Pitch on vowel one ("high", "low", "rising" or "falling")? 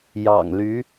low